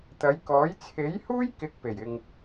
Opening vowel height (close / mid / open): open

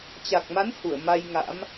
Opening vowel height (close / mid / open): open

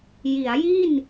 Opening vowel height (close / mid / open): close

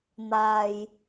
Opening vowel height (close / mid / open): open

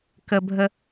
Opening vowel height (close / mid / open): mid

